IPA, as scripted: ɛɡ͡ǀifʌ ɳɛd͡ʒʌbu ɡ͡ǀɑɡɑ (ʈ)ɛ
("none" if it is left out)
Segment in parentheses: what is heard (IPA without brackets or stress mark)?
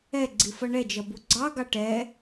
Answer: ʈ